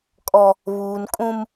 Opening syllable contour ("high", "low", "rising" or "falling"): low